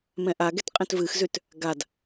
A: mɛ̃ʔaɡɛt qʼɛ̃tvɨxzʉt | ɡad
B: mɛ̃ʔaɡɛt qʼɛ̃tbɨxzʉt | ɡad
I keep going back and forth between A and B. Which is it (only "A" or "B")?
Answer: A